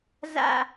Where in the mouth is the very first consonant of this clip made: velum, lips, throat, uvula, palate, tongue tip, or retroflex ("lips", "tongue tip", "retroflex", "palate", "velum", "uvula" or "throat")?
tongue tip